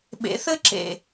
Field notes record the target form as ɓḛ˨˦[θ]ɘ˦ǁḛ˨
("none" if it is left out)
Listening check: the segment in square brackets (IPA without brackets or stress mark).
θ